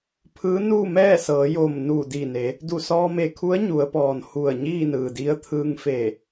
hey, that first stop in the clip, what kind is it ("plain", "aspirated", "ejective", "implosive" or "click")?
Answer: aspirated